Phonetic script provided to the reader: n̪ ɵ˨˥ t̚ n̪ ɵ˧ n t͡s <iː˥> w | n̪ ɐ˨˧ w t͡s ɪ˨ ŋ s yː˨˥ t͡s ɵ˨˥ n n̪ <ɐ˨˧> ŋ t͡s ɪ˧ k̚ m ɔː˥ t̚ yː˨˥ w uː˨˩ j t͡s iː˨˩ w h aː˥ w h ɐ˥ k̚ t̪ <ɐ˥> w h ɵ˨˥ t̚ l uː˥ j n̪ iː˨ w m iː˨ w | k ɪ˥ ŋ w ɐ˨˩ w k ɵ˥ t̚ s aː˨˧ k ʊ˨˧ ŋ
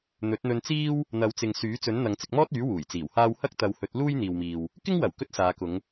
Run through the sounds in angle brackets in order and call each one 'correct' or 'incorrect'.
correct, correct, incorrect

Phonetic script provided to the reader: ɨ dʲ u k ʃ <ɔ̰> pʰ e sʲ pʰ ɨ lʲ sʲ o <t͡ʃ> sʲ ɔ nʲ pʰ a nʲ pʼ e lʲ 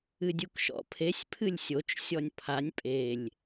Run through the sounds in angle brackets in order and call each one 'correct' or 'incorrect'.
correct, correct

